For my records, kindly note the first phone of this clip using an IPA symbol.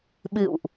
ɓ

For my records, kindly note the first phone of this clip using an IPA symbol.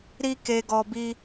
ɾ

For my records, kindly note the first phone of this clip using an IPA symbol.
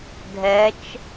dʱ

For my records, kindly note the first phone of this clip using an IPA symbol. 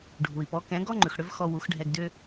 ɖʱ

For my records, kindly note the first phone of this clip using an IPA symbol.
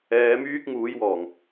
ɛː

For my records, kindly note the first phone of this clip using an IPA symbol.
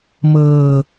m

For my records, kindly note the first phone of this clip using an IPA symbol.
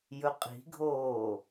j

